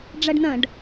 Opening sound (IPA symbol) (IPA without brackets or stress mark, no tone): ɖ͡ʐ